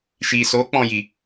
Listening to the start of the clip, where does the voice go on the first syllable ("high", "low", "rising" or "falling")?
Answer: low